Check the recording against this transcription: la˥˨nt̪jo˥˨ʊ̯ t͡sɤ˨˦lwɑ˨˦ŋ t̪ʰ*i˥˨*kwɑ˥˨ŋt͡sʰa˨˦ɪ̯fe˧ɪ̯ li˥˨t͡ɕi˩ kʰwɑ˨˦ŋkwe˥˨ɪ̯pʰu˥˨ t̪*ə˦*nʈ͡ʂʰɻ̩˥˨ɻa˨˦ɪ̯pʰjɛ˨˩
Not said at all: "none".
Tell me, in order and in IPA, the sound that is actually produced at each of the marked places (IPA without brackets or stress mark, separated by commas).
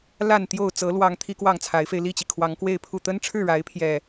i˦, ə˦